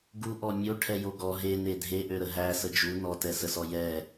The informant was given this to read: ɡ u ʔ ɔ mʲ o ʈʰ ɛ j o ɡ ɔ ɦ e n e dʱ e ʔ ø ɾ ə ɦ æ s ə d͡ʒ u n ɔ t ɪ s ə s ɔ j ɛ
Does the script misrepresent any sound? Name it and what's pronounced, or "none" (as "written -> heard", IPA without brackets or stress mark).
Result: ɪ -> ɛ